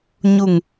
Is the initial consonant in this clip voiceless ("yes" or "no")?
no